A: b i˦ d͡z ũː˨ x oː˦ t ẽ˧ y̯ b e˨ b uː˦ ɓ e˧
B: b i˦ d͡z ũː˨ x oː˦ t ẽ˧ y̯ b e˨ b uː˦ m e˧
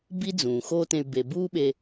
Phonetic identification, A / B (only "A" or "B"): A